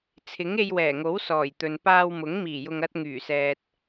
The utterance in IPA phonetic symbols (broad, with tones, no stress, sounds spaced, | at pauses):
t͡sʰ ɪ˨˥ ŋ e˧ j w ɛː˨˩ ŋ o˨˥ w s ɔː˨˩ j t̪ ɵ˨ n p aː˧ w m ʊ˨˥ ŋ m iː˨˩ j ʊ˨ ŋ ɐ˧ t̚ ŋ yː˨˩ s ɛː˨ t̚